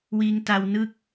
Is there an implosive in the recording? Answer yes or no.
no